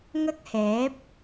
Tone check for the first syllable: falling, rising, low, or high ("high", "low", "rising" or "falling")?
high